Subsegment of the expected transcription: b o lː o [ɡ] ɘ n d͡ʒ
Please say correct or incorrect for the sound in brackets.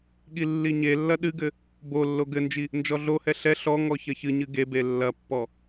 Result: correct